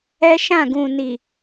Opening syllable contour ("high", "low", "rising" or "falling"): high